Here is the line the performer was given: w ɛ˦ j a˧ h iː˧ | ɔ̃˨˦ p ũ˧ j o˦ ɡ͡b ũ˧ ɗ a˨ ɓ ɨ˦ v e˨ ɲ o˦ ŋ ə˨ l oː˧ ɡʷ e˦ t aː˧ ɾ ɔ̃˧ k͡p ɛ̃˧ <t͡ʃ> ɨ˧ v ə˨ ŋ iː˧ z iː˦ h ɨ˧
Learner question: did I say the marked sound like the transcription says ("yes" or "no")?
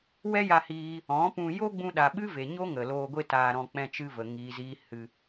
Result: yes